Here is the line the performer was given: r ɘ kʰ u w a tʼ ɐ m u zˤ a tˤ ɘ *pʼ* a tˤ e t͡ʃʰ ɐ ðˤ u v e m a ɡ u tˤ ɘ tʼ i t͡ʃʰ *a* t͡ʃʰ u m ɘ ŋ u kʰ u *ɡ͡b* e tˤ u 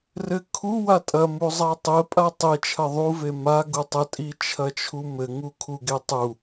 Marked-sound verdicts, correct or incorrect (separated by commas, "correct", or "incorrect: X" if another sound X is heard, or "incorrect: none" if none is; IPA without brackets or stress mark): correct, incorrect: ɐ, incorrect: ɡ